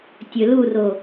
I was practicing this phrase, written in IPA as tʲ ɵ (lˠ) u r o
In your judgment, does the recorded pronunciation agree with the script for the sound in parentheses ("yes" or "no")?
no